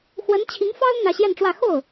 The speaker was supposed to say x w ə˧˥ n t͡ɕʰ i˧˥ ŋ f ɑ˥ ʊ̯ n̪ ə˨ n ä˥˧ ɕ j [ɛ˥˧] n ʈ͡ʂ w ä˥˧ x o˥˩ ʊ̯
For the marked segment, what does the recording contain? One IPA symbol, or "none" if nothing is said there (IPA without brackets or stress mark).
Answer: ɛ˥˧